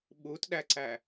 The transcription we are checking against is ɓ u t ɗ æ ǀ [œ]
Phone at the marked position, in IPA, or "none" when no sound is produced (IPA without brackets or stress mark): æ